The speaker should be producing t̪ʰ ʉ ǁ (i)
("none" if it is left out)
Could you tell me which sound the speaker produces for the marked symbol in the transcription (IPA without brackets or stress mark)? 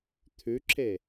e